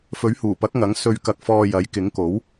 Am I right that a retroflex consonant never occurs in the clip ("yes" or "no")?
yes